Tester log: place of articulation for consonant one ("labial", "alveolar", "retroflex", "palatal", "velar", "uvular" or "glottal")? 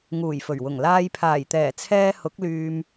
velar